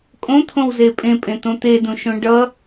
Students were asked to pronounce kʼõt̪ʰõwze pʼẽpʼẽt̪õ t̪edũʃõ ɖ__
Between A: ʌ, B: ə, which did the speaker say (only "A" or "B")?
A